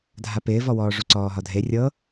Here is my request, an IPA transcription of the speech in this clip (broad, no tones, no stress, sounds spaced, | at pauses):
dʱ a p ɪː v ɔ w ɔː ʐ u ǀ ɔː ɦ ɒ dʱ e rʲ ɤ